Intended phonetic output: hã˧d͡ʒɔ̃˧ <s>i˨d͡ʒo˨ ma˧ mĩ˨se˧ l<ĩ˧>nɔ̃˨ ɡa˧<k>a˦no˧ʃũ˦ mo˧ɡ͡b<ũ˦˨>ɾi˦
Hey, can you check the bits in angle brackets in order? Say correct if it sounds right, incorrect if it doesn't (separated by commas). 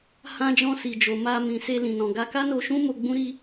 correct, incorrect, correct, incorrect